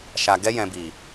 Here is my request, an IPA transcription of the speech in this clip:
ʃ a˨ ɡ ɛ˧ j ɛ̃˨ b i˨

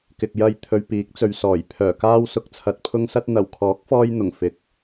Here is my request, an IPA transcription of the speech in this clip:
k ɪ˨ k̚ j ɐ˧ j t̪ʰ ɵ˧ ɥ p iː˨˥ k̚ t͡s ɵ˨˧ ɥ s ɔː˨˩ j pʰ œː˨˩ k aː˧ w s ʊ˨ k̚ t͡sʰ ɐ˨ t̚ pʰ ʊ˧ ŋ s ɐ˧ t̚ n̪ ɐ˨˩ w kʰ ɔː˨˥ k̚ f ɔː˧ j n̪ ʊ˨˩ ŋ f ɪ˨ k̚

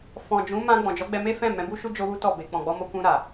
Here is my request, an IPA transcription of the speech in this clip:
f ɔ̃˨ d͡ʒ ũ˨˦ m ã˧ ɡ͡b ɔ̃˨ d͡ʒ ɔ˨˦ ɡ͡b ɛ˧ m e˦ f ɛ̃˦˨ m ɛ̃˨˦ b u˦ ʃ u˦ d͡ʒ o˦ w u˦ t ɔ˦˨ b e˨ k͡p ɔ̃˨ ɡ͡b ɔ˧ m o˧ k ũ˧ ɾ a˨

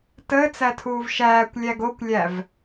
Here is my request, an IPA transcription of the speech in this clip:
t əː t͡s æ tʰ uː v ʃ æː kʷ lʲ æ ɡ o kʷ lʲ æ v

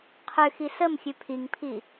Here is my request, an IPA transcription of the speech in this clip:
qʰ ʉ x i s ə m xʲ ʉ pʰ i ŋ pʰ i

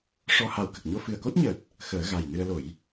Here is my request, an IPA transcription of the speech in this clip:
ʂ ɔ˧ h a˨˩˦ w k ə˨˩ k̚ ɲ o˧ f ɨ˨˩ ə̯ k o˦˥ t̚ ɲ əː˨˩ t̚ | x əː˨˩˦ ɣ a˨˩ j n ɨ˧ ə̯ l o˨˩˦ j

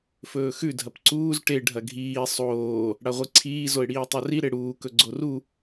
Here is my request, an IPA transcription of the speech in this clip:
f ɵː x ʉ dʱ ɐ p ǀ uː z ʈ e ɖʱ ɐ ɡʱ iː sˤ oː | ɽ a ʁʷ ɨ ǀʰ iː z o ɪ̯ ɽ iː tˤ o r i ɾ e ɽ uː k ɵ ɡ͡ǀ o r u

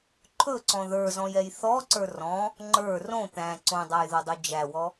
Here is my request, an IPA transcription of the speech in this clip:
ǃʰ ɵ ǀ ɔ̃ ð ə˞ z ɔ̃ j ɛ j θ ɔ ǀ ə˞ r ɔ̃ | ŋ͡ǃ ə˞ r õ t̪ æ̃ ǀ õ dˤ a j ð o dˤ o d͡ʒ æ w ɔ

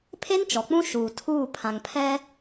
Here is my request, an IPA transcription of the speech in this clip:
pʰ e˦ n t͡ʃ ɔ˨ k͡p ũ˦ ʃ uː˨ tʰ uː˦˨ pʰ ã˨ ŋ pʰ ɛ˦

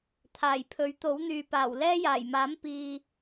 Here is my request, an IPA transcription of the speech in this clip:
t̪ʰ aː˨˩ j pʰ ɵ˨˥ ɥ t̪ o˨˥ w n̪ yː˨ p aː˨˩ w l ɛː˥ j aː˨˩ j m aː˨˥ m p iː˨

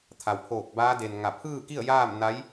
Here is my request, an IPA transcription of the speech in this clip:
t̪ʰ a˩ w pʰ oː˧˩ k̚ b aː˧˥ d e˩ n ŋ a˧˩ pʰ ɯː˥˨ k i˥˨ ə̯ j aː˥˨ m n a˧˥ j

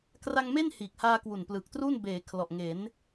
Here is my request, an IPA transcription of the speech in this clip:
k r a˧ ŋ m e˥˩ n h iː˨˩ k̚ h aː˧ k w u˨˩ n p l ɯ˨˩ k̚ t r u˥˩ n b eː˩˦ kʰ l ɔ˨˩ ʔ ŋ e˩˦ n

